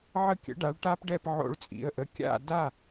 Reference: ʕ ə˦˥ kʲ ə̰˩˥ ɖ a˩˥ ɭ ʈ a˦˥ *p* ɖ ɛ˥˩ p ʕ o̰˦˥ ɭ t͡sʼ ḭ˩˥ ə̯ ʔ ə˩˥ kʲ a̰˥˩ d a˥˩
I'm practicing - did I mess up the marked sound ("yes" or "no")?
no